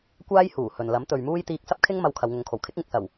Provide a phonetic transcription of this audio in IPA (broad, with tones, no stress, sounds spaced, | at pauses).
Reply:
kʷ aː˥ j h uː˨˩ h ɵ˨ n l ɐ˨˥ m t̪ ɵ˨ ɥ m uː˥ j t̪ iː˧ k̚ s ɐ˥ p̚ kʰ ɪ˥ ŋ m ɐ˧ w kʰ ɐ˨˧ w ŋ ʊ˨˧ ŋ kʰ o˨˩ w kʰ ɪ˨˥ k̚ ŋ ɪ˨ k̚ s ɐ˨˩ w